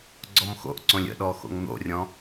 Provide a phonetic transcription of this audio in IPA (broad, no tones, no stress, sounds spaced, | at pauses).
ɡ͡ǀ ɔ m x o̰ ʔ ǀ õ lʲ ə̰ ɗ ɔ x o̰ ŋ n̪ o̰ rʲ ɔ̃